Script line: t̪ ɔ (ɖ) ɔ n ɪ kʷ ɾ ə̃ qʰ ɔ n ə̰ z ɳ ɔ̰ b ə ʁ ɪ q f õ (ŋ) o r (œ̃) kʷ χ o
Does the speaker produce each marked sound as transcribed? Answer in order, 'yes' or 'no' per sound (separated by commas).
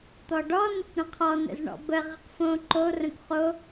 yes, no, no